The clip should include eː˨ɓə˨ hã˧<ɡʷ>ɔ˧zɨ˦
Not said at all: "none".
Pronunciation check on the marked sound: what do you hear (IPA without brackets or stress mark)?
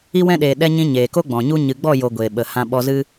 ɓ